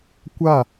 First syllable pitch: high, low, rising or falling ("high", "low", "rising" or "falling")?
falling